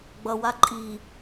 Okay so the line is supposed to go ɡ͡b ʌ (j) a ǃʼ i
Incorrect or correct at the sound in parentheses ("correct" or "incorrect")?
incorrect